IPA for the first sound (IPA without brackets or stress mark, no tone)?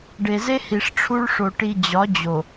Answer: ɖ